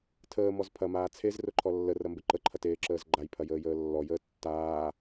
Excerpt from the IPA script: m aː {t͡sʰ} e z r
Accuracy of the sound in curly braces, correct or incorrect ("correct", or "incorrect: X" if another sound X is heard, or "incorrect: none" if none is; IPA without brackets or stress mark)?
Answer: correct